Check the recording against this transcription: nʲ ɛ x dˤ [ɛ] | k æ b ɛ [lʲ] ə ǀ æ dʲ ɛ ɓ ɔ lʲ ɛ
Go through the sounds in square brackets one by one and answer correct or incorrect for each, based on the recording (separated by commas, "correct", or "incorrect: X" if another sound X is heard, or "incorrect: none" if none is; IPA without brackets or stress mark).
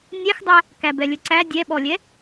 incorrect: æ, correct